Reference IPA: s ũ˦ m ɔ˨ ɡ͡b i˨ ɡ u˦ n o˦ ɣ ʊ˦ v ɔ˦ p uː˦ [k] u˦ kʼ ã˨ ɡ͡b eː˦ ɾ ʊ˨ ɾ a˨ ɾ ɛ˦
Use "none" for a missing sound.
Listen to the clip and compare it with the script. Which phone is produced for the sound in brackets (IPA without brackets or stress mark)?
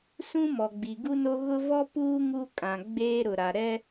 ŋ